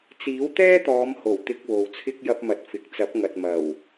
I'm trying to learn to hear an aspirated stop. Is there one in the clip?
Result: yes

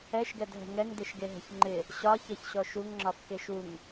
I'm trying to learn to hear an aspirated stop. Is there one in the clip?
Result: no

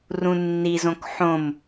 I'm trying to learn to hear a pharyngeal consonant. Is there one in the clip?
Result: yes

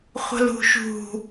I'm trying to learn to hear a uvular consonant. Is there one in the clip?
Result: yes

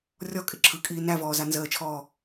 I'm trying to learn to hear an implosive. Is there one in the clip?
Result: no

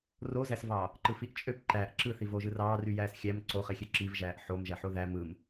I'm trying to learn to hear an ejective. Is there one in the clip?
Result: yes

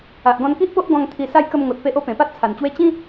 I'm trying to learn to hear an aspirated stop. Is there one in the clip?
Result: yes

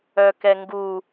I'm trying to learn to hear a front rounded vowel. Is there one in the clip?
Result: yes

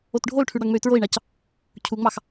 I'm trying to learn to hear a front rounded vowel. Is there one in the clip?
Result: yes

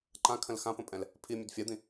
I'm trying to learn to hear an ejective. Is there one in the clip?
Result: yes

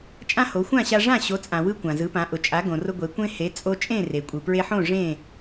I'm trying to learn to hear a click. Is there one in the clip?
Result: no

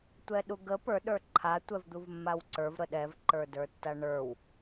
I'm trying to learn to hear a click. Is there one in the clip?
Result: yes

